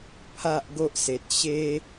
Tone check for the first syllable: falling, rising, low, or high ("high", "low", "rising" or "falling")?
low